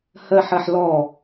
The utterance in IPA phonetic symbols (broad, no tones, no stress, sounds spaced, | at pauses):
h ɜ ħ ɜ ħ l ɔ